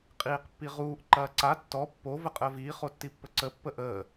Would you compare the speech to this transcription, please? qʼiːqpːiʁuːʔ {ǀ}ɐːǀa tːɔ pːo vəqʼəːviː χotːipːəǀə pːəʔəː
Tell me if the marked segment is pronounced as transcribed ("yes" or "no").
no